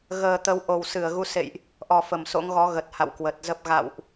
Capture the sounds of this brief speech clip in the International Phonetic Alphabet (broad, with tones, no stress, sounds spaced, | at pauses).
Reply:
ɣ əː˨˩ t̪ ə˨˦ w ʔ o˨˩ w s ɨ˧˩ ə̯ ɣ u˨˦ s ḛ˧˨ j ʔ | ʔ ɔ˨˩ f ə˧˩ m s o̰˧˥ ŋ ɣ ɔ˨˦ ɣ ə˨˩ t̚ h a̰˧˨ w k w ə˨˩ t̚ z ə˦˥ p̚ ɣ a̰˧˨ w ʔ